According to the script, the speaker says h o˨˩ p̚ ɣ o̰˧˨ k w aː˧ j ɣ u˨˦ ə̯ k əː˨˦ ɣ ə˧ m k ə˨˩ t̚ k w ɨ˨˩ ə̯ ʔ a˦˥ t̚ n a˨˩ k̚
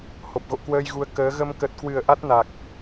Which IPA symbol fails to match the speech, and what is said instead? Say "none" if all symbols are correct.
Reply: aː˧ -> əː˧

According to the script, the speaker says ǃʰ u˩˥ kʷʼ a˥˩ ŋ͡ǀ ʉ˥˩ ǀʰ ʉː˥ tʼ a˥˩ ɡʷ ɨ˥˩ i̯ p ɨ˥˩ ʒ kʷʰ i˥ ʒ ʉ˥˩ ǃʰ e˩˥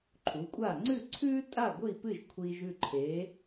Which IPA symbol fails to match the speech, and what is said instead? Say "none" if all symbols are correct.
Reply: i˥ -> i˧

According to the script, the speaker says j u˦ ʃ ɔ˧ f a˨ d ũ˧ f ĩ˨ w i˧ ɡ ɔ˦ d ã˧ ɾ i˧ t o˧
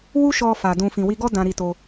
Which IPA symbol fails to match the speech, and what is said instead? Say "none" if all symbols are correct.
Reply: j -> w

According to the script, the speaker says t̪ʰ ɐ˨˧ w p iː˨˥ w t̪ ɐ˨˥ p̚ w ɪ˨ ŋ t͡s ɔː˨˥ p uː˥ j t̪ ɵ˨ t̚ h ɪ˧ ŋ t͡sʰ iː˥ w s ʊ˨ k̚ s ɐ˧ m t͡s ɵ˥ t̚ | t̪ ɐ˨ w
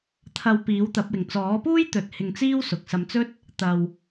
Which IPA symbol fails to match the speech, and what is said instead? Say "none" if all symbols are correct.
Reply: t͡sʰ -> t͡s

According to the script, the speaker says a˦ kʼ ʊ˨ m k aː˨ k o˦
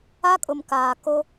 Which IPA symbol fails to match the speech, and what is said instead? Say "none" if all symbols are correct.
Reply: none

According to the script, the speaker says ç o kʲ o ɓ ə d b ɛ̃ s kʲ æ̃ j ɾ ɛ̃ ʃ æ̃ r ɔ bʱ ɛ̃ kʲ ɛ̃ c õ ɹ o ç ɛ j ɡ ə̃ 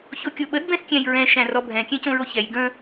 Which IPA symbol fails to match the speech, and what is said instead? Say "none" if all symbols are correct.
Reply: ɾ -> ɹ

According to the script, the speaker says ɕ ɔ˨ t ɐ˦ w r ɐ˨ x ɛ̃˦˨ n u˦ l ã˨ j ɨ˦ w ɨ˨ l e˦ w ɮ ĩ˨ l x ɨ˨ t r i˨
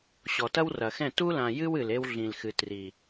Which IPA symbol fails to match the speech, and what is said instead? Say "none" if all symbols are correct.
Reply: n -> t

